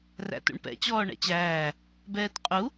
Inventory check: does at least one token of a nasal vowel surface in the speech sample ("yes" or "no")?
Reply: no